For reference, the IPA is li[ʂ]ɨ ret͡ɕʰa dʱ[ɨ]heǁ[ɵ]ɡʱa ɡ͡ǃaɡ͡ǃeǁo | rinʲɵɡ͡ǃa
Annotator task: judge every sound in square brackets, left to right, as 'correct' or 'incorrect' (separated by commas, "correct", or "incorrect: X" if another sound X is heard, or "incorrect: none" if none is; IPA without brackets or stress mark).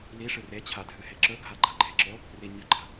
correct, correct, correct